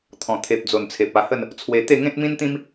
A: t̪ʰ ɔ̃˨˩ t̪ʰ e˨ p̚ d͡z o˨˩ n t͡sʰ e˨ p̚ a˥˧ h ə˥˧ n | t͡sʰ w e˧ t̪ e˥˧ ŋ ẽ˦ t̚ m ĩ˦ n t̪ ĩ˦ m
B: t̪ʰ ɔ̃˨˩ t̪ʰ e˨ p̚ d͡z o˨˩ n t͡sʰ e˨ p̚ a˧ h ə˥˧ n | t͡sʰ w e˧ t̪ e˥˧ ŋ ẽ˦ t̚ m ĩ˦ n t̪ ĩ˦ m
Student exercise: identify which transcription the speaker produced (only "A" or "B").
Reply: B